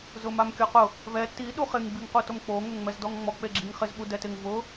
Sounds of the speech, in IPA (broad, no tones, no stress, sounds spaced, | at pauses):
z ʊ m a m kʲ ɔ q ʊ | v ɛ t i ɗ u χ ɪ ŋ b i ŋ q u t o m k͡p o ŋ o ŋ ŋ͡m ɛ z d ɔ ŋ ŋ͡m ɔ k͡p e ɡ͡ǁ i ŋ χ ɪ z ɓ u d ɛ t ɪ ŋ v ʊ